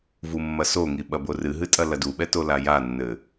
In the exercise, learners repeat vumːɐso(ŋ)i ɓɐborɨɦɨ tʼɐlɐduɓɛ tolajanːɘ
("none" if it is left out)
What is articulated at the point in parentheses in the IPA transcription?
ŋ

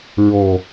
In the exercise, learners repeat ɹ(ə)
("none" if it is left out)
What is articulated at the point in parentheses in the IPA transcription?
ɔ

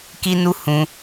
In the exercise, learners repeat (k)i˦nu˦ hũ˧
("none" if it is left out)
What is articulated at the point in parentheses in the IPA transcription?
k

